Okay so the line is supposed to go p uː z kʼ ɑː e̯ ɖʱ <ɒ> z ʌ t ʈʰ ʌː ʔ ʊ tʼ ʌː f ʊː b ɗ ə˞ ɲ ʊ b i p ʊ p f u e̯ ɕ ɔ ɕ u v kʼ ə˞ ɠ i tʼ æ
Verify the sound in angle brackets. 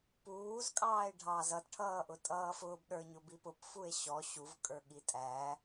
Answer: incorrect: ɑ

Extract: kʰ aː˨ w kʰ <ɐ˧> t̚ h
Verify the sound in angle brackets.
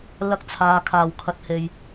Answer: correct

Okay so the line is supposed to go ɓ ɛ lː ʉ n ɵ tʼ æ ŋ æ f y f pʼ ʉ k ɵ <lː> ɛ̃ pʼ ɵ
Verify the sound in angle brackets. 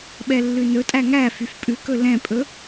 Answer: incorrect: l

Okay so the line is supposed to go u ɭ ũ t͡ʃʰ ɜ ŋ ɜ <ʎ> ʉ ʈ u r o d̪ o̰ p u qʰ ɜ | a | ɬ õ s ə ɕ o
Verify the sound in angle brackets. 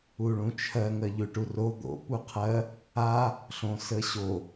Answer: correct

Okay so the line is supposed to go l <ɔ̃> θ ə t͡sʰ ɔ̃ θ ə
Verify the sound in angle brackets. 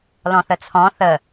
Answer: correct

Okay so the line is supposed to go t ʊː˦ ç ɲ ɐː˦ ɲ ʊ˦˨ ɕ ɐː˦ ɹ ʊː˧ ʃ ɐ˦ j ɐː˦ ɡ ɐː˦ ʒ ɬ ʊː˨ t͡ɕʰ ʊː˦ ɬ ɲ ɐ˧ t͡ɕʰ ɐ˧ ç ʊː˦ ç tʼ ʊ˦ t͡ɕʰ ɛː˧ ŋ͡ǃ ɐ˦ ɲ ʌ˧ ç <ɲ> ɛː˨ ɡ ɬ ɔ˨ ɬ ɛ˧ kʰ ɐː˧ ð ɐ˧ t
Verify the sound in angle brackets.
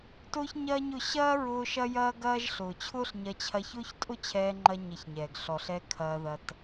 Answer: correct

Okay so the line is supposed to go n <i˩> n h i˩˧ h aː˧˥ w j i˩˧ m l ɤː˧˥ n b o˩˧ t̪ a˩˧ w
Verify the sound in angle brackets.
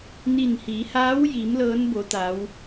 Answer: incorrect: i˧˩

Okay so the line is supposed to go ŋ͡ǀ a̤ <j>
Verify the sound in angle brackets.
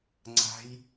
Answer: correct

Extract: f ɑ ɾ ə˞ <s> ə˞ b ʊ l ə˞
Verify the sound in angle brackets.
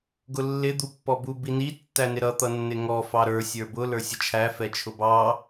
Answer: incorrect: sʲ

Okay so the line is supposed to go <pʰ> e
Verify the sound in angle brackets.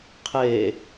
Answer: incorrect: qʰ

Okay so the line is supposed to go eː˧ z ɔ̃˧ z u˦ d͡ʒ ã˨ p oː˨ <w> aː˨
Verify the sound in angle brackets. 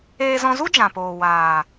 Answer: correct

